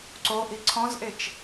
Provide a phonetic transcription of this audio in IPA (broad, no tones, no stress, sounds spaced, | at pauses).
ǀ o ʔ i ǀʰ ɔ̃ z ʔ e t͡ʃ